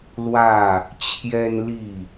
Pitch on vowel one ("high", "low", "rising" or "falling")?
falling